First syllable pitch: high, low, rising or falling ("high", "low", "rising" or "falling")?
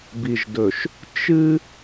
low